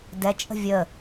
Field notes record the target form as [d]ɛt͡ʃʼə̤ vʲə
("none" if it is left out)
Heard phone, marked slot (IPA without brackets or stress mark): d